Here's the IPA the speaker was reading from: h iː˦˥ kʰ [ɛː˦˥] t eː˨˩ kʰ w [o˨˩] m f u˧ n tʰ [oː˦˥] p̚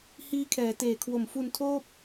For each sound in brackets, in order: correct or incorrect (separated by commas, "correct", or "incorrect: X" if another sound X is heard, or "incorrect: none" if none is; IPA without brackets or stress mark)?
incorrect: ɛː˩˦, correct, incorrect: oː˥˩